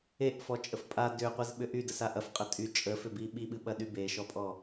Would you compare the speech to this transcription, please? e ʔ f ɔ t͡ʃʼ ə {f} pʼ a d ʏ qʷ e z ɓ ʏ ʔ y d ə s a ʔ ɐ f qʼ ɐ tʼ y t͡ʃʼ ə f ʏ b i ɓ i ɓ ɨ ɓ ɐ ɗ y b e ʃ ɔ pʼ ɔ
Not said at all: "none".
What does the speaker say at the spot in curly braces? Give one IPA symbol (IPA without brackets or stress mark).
f